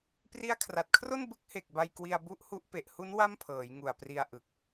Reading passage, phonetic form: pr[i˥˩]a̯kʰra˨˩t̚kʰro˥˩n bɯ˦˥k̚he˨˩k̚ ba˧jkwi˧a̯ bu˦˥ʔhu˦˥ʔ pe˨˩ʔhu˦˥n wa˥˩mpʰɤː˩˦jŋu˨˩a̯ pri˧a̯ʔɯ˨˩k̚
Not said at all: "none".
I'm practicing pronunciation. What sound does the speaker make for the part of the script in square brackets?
i˦˥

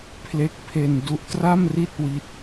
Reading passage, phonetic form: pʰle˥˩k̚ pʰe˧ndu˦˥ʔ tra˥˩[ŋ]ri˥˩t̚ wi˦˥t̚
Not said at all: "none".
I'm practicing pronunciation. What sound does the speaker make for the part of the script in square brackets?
m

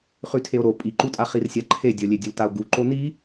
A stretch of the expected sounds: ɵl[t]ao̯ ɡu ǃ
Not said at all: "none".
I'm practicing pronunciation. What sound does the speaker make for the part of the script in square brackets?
t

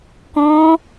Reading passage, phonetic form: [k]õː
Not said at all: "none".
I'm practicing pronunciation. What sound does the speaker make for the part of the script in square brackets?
k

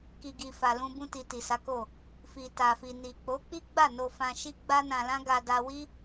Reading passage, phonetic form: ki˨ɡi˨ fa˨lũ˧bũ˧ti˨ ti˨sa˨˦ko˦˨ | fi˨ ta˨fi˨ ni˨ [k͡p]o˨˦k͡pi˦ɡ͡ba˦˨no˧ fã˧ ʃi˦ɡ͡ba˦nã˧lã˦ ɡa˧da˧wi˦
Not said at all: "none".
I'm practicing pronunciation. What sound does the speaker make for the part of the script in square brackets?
k͡p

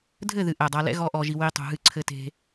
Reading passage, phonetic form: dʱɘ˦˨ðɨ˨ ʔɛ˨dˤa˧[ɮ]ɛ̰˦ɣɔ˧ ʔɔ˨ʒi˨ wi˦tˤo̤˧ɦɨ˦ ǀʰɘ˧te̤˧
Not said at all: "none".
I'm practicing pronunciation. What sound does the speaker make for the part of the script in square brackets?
l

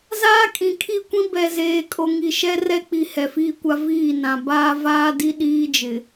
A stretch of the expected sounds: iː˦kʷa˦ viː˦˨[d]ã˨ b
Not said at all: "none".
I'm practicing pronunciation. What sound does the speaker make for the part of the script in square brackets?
n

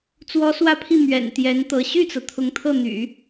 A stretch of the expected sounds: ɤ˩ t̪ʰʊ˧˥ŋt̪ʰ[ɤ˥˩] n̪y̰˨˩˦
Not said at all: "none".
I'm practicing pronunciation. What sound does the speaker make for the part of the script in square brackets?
ɤ˥˩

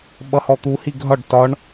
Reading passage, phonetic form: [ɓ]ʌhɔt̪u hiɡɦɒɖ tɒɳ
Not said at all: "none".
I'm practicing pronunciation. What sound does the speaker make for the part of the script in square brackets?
ɓ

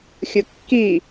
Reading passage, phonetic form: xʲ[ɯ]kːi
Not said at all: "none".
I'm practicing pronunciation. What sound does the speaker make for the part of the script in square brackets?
ɯ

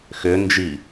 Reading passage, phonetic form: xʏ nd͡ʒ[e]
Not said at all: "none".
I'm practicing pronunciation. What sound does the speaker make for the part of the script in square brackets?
i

